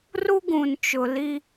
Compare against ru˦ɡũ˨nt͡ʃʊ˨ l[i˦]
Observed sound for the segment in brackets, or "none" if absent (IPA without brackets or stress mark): i˦